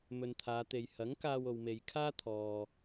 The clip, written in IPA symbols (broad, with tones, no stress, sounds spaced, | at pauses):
m ɵ˨ n t̪ʰ aː˨˧ t̪ e˨ j h ɐ˨˥ ŋ k aː˧ w o˨ w m e˨ j kʰ aː˥ t̪ʰ ɔː˨